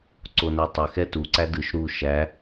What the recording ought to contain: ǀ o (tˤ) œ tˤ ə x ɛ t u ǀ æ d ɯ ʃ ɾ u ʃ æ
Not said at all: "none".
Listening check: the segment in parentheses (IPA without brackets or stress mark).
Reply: n